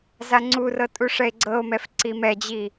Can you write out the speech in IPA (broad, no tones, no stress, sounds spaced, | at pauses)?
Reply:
z a ŋ͡ǀ u r ɤ tʼ u ʂ ɛ e̯ ɡ͡ǀ ɤ o̯ m ɛ f ǀ i m ɛ d͡ʑ i